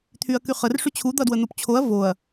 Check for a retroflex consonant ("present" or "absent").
present